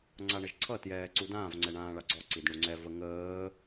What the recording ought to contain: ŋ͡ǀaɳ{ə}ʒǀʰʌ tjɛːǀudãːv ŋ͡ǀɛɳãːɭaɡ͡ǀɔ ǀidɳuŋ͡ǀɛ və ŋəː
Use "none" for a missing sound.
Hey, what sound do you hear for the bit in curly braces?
ə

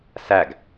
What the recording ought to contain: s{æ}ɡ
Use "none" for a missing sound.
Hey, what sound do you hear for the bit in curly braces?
æ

